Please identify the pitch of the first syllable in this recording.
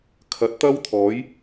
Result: rising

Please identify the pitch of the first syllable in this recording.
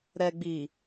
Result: low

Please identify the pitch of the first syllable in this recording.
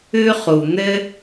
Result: high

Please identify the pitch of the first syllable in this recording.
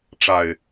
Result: low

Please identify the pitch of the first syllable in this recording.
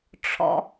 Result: low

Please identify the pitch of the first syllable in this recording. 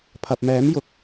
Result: low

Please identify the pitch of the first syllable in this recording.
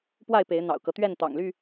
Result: falling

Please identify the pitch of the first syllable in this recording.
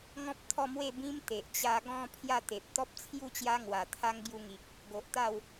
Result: high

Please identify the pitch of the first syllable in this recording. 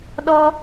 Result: high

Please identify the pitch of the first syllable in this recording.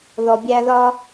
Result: low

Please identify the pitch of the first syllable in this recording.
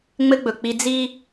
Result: high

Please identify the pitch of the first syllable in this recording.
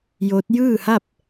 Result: rising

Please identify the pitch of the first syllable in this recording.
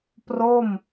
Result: falling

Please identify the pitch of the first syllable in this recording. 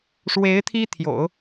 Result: rising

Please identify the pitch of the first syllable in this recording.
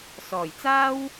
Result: low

